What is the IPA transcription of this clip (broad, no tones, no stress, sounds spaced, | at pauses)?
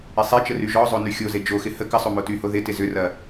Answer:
ɪ sˤ e t͡ʃ ə r y ʒ ɔ zˤ o n y xʲ o z e d͡ʒ o x ɪ h ə k ə sˤ o m o t y h o ð ɪ t ɪ z ʏ r ɐ